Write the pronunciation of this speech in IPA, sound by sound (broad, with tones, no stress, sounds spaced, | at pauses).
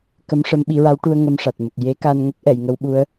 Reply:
k ə˧˥ m ʂ ə˧˥ m ɓ i˨˩˦ ɹ a˧˥ w ʈ u˧ ə̯ ŋ ə˧ m ʂ a˨˩ t̚ m ə˨˩ k̚ j e˧˥ k a˧ n ŋ ə˦˥ k̚ ʔ ɛ˨˩˨ j ŋ ə˧˥ w ɓ u˧˥ ə̯